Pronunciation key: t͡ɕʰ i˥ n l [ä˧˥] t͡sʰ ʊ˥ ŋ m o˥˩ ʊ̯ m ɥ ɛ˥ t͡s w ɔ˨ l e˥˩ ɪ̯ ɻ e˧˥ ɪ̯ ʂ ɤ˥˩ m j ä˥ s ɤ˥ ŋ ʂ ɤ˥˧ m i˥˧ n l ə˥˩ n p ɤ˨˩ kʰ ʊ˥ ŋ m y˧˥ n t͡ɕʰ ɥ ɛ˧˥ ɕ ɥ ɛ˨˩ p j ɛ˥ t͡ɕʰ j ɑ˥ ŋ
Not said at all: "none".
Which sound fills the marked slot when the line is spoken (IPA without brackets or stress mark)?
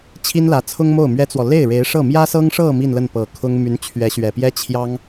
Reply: ä˧˥